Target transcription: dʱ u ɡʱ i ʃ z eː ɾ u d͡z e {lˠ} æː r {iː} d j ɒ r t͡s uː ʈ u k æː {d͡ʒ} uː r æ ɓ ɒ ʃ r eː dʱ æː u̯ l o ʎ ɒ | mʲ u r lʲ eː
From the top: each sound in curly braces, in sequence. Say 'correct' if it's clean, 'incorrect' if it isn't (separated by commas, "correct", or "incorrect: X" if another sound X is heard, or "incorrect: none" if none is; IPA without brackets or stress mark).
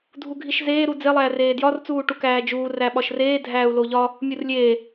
correct, incorrect: eː, correct